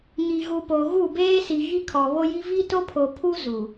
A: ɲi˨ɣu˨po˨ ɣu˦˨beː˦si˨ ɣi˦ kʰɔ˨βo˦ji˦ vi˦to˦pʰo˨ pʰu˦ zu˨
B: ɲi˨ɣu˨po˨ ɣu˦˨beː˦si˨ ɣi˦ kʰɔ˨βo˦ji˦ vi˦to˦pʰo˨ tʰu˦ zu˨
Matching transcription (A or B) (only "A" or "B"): A